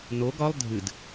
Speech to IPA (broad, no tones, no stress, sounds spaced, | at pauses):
n o ɡ ɒ lˠ dʱ ɨ d